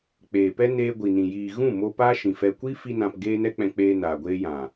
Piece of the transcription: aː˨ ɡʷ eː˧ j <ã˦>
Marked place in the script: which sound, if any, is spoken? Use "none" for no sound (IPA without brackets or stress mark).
ã˨